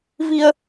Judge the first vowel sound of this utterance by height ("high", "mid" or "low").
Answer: high